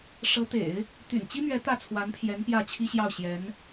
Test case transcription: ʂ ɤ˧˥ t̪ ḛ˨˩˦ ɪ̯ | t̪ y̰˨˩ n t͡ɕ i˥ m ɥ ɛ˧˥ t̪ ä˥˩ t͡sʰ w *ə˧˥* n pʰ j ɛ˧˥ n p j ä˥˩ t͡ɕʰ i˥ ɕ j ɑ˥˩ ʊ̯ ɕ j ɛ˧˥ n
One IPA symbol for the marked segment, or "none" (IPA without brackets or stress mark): a˧˥